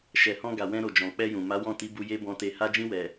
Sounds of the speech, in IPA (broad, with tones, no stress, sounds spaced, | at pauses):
ʃ ɛ˨ h ɔ̃˧ ɡ a˨ w ɛ̃˧ ɾ o˨ d͡ʒ ɔ̃˨ k͡p ɛ˧ j ũ˨ m a˨˦ w ɔ̃˦˨ t i˨˦ b u˧ j e˦ b ɔ̃˧ t e˧ h a˧ d͡ʒ ĩ˧ w ɛ˨